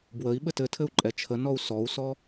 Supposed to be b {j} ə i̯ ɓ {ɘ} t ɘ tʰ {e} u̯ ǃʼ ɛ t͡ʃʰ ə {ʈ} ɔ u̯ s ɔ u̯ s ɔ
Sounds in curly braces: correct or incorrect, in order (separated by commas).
incorrect, correct, incorrect, incorrect